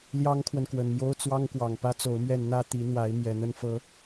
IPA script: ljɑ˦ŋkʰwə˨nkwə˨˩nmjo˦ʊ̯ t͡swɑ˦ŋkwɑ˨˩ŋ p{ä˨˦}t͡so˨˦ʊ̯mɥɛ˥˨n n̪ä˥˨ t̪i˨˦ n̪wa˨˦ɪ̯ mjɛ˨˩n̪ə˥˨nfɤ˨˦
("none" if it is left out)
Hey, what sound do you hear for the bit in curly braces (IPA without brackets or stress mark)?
ä˦